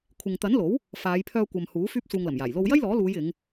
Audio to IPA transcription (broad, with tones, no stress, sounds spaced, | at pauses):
kʷʰ ɪ˨ ŋ t̪ ɐ˨˥ n l o˨˥ w | f aː˨˧ j pʰ œː˧ kʷ ɐ˨ m h uː˨˥ f yː˥ p̚ s uː˧ ŋ l ɐ˨˩ m j aː˨˩ j l o˧ w j ɐ˥ j l ɔː˨˥ l uː˨˧ j ɪ˨˧ ŋ